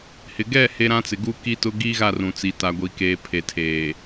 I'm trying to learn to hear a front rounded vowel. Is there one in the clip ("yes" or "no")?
no